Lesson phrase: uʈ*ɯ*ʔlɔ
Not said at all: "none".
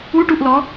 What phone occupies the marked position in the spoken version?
u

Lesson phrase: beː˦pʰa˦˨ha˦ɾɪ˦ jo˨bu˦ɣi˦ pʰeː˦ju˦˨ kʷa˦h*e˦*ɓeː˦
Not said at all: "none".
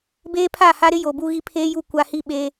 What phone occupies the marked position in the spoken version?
i˦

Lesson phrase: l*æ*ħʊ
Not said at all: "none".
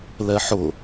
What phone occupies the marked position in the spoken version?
ɛ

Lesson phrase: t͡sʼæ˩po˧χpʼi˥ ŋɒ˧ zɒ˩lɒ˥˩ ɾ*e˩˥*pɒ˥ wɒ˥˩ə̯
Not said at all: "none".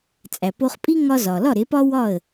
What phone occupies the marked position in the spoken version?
e˩˥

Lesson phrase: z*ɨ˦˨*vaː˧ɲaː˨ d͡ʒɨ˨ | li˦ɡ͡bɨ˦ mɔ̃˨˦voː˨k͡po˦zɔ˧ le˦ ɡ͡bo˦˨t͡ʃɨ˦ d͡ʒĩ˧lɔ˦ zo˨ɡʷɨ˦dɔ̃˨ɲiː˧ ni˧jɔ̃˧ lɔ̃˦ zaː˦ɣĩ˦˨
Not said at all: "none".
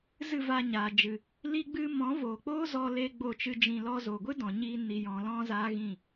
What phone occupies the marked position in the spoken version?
ɨ˦˨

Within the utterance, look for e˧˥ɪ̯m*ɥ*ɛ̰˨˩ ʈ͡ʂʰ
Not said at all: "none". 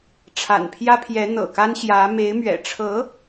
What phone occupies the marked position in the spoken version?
ɥ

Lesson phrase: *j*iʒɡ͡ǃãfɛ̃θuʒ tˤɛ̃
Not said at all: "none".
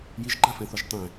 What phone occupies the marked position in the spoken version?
j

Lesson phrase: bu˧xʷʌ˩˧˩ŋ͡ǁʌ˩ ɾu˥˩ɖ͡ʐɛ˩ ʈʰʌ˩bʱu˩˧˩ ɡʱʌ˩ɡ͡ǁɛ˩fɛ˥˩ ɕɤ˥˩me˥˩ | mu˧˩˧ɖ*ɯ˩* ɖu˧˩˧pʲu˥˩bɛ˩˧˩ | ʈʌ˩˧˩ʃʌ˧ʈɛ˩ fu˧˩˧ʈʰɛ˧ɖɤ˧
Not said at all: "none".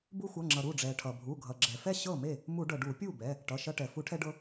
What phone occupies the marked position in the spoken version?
ɤ˩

